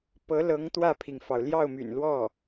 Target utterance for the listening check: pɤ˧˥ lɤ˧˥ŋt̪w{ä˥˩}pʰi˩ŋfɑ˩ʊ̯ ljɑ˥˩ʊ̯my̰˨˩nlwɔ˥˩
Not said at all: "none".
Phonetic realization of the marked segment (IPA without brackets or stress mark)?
ä˥˩